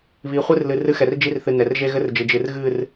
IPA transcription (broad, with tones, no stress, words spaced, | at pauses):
βi˨χʷɨ˦rlɨ˨ rɨ˦xɛ˨rd͡ʒi˦rθɨ˨ nɛ˨rʒe˦ɣɘ˦rd͡ʒɨ˨ d͡ʒɨ˨rɣɨ˦˨r